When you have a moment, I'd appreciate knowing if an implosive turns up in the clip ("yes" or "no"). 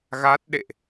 yes